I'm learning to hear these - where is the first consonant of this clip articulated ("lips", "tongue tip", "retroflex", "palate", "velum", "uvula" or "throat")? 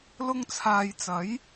tongue tip